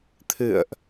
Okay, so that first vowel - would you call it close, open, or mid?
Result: close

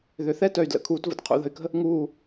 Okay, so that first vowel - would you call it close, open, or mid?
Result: close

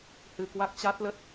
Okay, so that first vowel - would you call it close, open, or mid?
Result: close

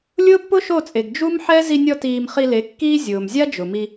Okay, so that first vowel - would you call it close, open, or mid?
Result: close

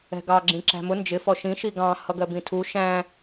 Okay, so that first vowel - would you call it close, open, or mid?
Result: mid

